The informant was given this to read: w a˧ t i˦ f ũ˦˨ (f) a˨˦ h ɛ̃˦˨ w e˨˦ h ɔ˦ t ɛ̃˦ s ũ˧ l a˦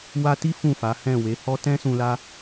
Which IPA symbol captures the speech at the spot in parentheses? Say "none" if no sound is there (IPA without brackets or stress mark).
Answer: f